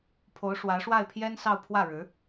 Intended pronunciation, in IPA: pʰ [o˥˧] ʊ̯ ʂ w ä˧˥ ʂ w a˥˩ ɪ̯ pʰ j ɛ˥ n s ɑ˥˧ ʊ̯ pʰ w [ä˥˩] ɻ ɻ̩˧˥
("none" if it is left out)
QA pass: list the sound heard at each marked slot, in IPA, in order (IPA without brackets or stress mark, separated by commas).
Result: o˧˥, ä˥˩